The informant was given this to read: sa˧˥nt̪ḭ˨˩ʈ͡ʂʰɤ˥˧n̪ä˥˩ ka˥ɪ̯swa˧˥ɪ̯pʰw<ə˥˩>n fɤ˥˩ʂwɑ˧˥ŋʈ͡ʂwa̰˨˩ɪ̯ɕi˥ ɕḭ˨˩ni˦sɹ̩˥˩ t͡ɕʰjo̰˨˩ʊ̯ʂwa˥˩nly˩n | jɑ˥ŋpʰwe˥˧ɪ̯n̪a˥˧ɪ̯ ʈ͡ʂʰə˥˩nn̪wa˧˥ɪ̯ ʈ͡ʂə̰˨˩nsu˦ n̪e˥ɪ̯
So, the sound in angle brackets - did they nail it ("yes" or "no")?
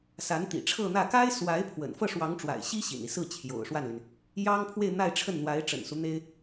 no